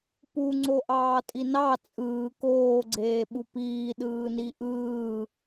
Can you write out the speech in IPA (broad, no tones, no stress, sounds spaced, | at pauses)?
p u ŋ͡ǀ o ʔ ɑː tʼ i n ɑ t͡sʼ ɯː k oː ɡ͡ǀ eː ɓ u p iː ɗ ɯː n i ʔ ɯː